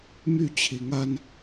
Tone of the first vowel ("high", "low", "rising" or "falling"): falling